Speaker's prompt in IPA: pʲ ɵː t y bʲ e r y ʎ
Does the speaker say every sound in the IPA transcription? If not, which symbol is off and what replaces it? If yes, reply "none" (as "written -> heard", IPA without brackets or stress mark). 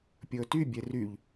none